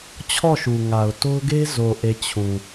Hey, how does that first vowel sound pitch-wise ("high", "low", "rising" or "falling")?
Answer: falling